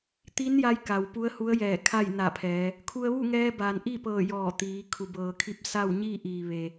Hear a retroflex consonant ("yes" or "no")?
no